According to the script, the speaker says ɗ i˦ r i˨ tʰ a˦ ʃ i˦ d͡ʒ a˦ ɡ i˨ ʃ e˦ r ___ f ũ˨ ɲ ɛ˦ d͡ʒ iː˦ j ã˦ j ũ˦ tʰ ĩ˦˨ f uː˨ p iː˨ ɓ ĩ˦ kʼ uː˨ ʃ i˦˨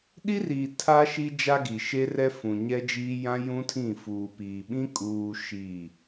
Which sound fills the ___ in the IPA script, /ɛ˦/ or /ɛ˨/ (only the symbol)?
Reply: ɛ˦